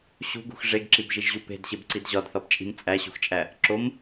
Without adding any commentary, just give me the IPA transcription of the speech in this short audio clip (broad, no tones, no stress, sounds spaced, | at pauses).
ɕ ṳ ɡ ṳ x ʐ e ɡ ǁ i b ʒ i ʒ ʑ u p e̤ d ɕ e b ǀ i d ʑ ɒ d θ ɒ b t͡ʃʼ i̤ m t͡sʼ æ ɕ ṳ x t͡ʃʼ æ | ǁ o m